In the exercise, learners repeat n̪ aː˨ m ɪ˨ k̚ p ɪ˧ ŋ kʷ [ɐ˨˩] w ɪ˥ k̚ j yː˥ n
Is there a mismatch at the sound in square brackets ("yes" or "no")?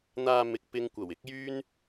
no